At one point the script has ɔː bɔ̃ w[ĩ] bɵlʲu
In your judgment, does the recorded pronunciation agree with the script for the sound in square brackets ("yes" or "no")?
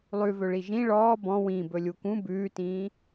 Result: yes